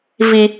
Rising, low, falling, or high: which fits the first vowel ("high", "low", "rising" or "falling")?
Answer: high